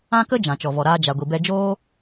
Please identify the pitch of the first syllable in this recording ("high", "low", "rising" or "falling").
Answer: high